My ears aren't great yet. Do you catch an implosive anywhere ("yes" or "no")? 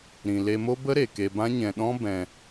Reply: yes